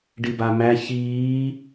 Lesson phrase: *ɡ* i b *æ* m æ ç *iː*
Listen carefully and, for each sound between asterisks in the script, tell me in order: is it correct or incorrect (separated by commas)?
incorrect, incorrect, correct